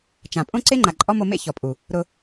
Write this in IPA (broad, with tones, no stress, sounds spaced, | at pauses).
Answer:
t͡ʃ ã˨ pʼ õ˦ ǀ e˦ ŋ͡ǃ a˨ ǃʼ ɔ˦ m o˧ m ḛ˦ ç ɔ˨ pʼ u˨ | ɾ ʊ˧